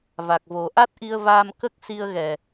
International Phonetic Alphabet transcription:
v a˨˩ k̚ v o˨˩˦ ʔ a˦˥ t̚ ʔ i˧ ə̯ v aː˧ m k ə˦˥ k̚ s i˧ ə̯ ɣ ɛ˨˩

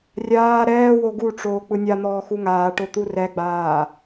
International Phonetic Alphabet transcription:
rʲ aː ɾ ɛː w o ɡ u ʈ͡ʂ oː k͡p ɯ nʲ a n̪ ɔː x u ŋ aː ʈ o t̪ u r ɛ ɡ͡b aː

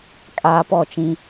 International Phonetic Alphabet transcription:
kʼ aː˦ p ɔ˦˨ t͡ʃ ĩ˦

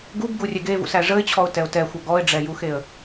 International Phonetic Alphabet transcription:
ɡ u b ɡ u rʲ ɛ ɡ e v ṵ s æ ʐ ə ɪ̯ t͡ɕʰ ɔ ʊ̯ t ɛ ʊ̯ t ɛ xʷ ʌ ɡ ɔ ɪ̯ ɖ͡ʐ ɛ j u x e ə̯

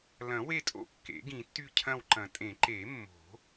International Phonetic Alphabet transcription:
l ɐ̃˨˩˦ w e˦˨ tʼ o̰˦˨ kː ḛ˨˩˦ ɡ ĩ˨˩˦ tː y˦˨ cʰ ɐ̃˦˨ w ǃ ɐ̃˨˩˦ tʼ ẽ˨˩˦ ǃ e˨˩˦ mː o̤˨˩˦

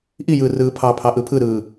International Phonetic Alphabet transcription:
ʔ i j ɯː r ɯː pʰ ɑ pʰ ɑ ʔ ɯ pʰ ɯ ɾ ɯː

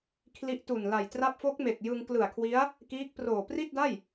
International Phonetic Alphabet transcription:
kʰ l i˦˥ ʔ t u˨˩ n l a˨˩ j t r a˦˥ p̚ f o˦˥ k̚ m e˨˩ k̚ j ɯ˧ ŋ k l ɯ˨˩ a̯ kʰ w i˦˥ a̯ | k iː˦˥ k̚ p r oː˨˩ p r i˥˩ t̚ d a˥˩ j

